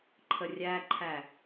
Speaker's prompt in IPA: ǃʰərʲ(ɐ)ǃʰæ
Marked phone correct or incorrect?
incorrect: æ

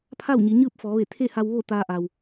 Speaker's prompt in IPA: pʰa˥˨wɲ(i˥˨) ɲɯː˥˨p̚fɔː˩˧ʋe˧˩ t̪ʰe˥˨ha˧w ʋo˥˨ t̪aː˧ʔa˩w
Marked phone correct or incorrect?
incorrect: i˩˧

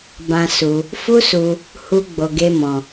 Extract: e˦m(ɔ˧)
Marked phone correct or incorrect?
incorrect: ɔ̃˧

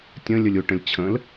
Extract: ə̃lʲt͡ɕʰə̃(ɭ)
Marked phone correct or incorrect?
incorrect: l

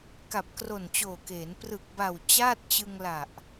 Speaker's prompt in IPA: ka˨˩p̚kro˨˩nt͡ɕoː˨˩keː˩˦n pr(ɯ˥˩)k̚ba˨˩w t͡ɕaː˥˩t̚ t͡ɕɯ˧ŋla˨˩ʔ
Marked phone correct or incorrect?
incorrect: ɯ˨˩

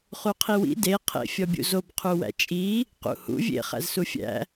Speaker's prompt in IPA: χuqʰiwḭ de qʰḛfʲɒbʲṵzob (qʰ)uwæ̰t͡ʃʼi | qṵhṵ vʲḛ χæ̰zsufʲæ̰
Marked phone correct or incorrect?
correct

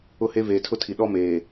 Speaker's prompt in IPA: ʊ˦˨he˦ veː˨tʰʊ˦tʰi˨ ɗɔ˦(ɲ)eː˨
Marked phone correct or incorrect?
incorrect: m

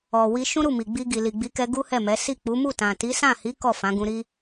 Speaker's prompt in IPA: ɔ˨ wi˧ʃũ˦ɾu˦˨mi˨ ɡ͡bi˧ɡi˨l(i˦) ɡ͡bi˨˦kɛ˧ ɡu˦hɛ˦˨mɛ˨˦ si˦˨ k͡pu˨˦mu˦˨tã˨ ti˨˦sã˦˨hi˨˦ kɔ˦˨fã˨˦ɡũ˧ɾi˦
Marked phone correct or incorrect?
incorrect: i˨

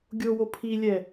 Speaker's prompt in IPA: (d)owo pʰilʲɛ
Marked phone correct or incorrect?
incorrect: ɡʲ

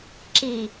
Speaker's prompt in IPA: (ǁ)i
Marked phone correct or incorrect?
correct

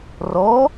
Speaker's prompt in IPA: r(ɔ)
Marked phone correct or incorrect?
correct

